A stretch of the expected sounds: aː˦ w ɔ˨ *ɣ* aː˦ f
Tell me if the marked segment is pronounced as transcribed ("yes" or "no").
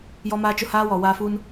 no